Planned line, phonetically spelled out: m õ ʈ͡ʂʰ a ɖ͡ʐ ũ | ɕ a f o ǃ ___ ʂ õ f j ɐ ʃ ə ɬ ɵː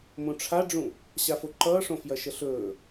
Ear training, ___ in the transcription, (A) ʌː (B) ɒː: A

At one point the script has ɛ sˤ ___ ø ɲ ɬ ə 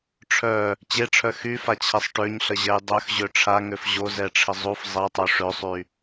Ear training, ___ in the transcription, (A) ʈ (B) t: A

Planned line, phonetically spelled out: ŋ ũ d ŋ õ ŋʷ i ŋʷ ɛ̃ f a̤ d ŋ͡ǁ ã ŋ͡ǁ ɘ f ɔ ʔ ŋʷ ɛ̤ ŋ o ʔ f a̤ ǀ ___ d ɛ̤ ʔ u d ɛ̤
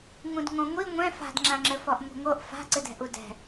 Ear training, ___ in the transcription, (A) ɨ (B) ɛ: A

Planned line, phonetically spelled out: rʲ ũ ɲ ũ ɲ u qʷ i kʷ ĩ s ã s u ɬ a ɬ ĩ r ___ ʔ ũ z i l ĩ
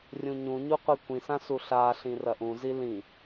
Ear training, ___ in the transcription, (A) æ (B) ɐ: B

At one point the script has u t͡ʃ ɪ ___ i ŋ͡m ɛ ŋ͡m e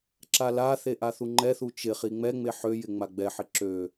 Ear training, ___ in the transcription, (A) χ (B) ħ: A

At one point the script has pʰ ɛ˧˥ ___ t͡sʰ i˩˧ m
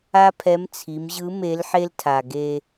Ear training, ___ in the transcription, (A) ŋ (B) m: B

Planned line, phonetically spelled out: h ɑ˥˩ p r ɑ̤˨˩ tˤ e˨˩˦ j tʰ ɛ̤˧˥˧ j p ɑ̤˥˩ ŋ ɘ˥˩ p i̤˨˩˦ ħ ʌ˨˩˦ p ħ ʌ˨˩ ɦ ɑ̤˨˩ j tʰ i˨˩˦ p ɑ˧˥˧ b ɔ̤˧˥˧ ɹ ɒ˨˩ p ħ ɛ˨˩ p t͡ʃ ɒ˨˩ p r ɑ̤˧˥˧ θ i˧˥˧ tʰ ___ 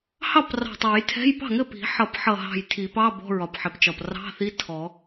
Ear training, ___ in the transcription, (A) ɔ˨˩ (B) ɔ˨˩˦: B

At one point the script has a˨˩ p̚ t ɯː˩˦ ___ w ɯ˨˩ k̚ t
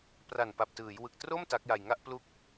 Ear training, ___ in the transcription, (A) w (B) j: B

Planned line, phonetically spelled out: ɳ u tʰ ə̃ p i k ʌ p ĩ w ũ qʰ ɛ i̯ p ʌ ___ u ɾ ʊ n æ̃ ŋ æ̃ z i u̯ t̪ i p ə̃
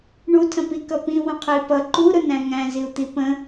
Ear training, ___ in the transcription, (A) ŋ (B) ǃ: B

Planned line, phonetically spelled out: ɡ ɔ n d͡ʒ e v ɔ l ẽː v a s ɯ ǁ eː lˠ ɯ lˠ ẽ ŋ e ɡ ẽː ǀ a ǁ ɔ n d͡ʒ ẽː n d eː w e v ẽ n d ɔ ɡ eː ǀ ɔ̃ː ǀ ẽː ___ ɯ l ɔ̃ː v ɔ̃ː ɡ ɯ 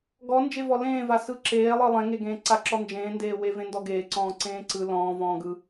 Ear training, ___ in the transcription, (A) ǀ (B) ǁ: A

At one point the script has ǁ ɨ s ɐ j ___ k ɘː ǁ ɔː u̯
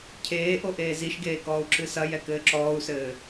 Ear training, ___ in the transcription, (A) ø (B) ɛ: B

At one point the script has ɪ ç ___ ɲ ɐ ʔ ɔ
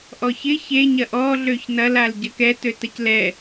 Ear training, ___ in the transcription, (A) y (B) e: B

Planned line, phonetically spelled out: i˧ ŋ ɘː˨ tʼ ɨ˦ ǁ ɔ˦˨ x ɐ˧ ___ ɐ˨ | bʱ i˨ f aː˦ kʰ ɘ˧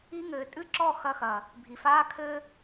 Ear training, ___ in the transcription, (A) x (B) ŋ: A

